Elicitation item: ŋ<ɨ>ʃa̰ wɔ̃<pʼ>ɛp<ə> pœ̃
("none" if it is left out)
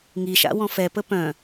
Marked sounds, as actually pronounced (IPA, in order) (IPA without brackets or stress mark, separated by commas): i, f, ə